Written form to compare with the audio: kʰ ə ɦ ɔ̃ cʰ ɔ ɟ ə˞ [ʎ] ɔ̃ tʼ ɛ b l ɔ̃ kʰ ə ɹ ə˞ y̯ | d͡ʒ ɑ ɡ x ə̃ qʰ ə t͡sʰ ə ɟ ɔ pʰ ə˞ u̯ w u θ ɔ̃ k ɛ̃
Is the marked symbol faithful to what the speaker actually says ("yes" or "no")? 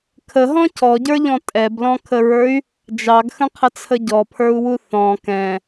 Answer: yes